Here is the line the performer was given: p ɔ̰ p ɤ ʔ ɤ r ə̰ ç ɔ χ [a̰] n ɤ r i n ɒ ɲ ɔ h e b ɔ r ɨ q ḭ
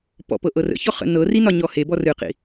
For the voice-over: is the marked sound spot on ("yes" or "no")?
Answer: no